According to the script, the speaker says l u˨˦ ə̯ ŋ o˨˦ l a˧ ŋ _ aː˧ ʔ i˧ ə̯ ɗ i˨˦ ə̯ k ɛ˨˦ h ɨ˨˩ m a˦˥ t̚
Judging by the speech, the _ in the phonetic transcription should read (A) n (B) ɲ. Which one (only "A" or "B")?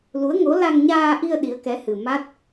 B